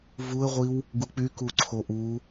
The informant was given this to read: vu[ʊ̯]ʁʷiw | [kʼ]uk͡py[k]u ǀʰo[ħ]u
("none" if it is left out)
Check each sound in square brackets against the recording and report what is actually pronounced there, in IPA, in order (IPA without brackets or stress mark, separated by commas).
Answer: ə̯, ɡ, k, ʔ